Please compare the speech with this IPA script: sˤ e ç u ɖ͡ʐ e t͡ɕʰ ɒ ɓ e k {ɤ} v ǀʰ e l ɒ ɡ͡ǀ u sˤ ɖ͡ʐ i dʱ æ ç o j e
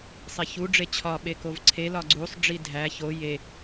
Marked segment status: incorrect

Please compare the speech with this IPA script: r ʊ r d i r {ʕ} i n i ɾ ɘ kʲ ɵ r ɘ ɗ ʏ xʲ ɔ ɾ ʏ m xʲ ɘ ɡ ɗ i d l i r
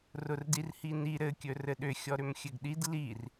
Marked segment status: incorrect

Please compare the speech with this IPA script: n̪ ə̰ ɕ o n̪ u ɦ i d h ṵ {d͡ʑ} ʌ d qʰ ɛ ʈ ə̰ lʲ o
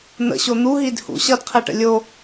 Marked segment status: incorrect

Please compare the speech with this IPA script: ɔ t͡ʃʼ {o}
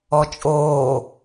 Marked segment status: incorrect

